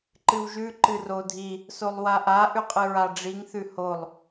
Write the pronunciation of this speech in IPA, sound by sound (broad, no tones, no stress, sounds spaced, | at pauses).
ǃ ɨ w ʒ ʉ ǃ ɨ r o dʱ i | s o lˠ w a ʔ a ʔ ʉ qʼ ɨ ɹ a ɖ͡ʐ i ŋ θ ʉ h o lˠ